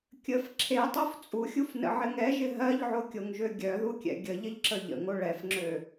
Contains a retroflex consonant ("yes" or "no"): yes